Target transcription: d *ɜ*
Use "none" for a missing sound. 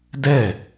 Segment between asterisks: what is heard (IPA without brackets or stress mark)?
ɛ